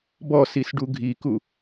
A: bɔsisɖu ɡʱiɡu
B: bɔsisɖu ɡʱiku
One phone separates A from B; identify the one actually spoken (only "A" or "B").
B